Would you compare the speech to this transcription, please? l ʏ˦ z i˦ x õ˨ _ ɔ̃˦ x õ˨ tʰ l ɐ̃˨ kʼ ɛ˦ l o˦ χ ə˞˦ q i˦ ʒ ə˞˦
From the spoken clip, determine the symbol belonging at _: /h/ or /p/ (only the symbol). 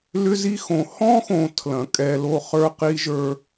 h